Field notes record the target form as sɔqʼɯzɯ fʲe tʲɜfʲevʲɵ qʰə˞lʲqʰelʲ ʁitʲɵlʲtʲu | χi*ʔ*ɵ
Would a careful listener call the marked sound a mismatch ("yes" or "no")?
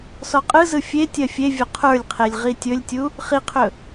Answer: yes